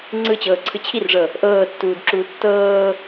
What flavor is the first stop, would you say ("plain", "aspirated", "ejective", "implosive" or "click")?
click